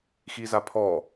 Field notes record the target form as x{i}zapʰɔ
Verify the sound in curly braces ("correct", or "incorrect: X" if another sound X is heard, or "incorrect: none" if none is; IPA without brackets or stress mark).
correct